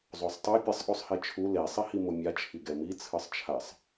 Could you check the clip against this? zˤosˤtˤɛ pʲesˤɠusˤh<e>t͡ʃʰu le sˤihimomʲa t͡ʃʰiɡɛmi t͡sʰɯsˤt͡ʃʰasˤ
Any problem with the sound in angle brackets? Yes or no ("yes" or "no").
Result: no